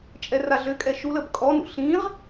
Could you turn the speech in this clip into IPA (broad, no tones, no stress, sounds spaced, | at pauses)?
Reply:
t͡ʃʼ ɛ r a ɮ ø kʼ ɛ ʃ u l ə b kʼ ɔ n ṵ ɬ ĩ ʁ